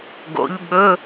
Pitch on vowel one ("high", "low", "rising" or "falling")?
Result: rising